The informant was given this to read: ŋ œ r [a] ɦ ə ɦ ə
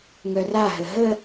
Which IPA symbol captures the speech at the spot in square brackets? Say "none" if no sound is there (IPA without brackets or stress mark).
a